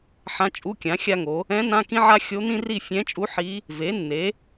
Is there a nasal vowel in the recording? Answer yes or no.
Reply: yes